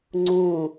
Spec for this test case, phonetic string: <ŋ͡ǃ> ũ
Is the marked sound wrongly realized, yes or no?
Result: yes